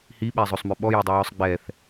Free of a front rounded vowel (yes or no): no